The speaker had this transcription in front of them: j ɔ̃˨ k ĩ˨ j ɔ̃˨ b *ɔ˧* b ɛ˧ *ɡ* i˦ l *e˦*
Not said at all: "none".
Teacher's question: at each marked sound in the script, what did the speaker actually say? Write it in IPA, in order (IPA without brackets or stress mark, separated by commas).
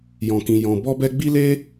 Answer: ɔ˧, ɡ͡b, e˦